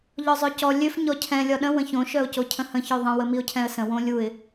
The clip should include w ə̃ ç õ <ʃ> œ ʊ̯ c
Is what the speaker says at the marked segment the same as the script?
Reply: yes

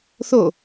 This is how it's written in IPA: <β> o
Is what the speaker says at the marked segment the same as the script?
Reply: no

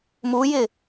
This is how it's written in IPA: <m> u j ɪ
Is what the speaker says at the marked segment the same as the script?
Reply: yes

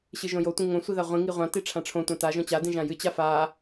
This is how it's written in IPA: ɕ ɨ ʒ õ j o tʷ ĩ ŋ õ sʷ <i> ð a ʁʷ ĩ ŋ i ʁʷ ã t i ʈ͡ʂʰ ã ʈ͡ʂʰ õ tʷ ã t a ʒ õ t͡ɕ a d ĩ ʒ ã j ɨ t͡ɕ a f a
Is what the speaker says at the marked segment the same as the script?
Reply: yes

